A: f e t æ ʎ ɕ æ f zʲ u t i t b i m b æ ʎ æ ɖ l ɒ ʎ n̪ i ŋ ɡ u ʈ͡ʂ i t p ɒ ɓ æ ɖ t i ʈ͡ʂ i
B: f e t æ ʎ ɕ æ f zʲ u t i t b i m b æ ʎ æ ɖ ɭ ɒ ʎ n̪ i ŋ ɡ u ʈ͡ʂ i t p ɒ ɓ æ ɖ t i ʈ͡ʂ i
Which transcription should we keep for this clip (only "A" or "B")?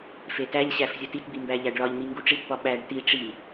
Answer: B